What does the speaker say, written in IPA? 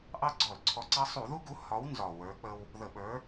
ʔ ɑ˦ ɡ͡ǀ ɔ˧˩˧ l ǀʰ ɔ˨˥ ǀ ɑ˦ sˤ u˧˩˧ ð u˦ ɡ u˨˥ h ɒ˨˥ w n z ɒ˨˩ w ə˞˨˥ k͡p ə˦ w | ð ə˧˩˧ ɓ ə˞˨˥

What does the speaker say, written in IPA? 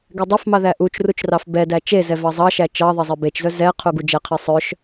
ɡ ɛ dˤ ɑ f m ɑ ð æ ʔ u t͡ʃ r u t͡ʃ r ɑ f b ɛ d æ t͡ʃ e z ɛ v ɑ zˤ ɑ ʃ æ t͡ʃ ɑ ðˤ ɛ zˤ e b e t͡ʃ z œ z ɛ qʰ u ɡ u d͡ʒ ɛ qʰ e sˤ œ ʃ

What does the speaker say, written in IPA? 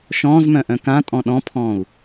ʃ ɔ̃ː z m œ̃ ʔ œ̃ k ã tʼ ɔ̃ ɗ ɔ̃ pʰ ɔ̃ː u̯

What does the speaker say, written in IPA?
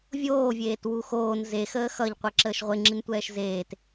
vʲ oː vʲ eː t w u x oː n z e x əː x ʌ ʎ qʷ æ ǁ əː ʃ ʁʷ e ŋ͡ǁ i n tʷ ɛː ʃ z eː t

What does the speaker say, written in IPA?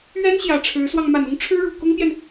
ɥ ɛ˥ n ɕ j ä˨˩ ʈ͡ʂʰ ɻ̩˧˥ s w ɑ˧ ŋ m a˨˩ n ʊ˥ ŋ ʈ͡ʂʰ ɻ̩˥ ɻ u˨˩ k ʊ˥ ŋ p j ɛ˨ n

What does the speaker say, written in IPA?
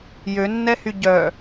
j ø nː ɛ h y ɟ œ

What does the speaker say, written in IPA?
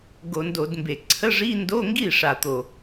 ɡ o˧˩˧ n d o˧˩˧ d m b e˨˩ ǀʰ ə˧˥˧ ʐ i˧˥˧ n d o˧˥˧ ŋ ɡ i˥˩ ʂ a˨˩ t̪ o˨˩

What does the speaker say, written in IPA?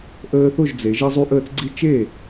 ʔ əː˦ θ o˥˨ ʒ d͡z e˨˦ ʒ e˦ zˤ u˦ ʔ əː˦ t͡s ɡ͡ǀ i˦ t͡ʃ e˥˨

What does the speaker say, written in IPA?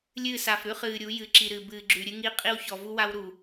lʲ ɨː˦˨ s a˨ f ɾ ʉ˦ χ ɨː˨ ɾʲ u˨˦ j ɨ˨ ǁ i˨ ɾ ɨ˨ b ɨː˨ ɡ͡ǁ ʉ˨ ɾʲ ɨ˦ ŋ i˦ qʼ i˦ w ç ɔ˨ v u˦ w a˦ w ɾ u˨

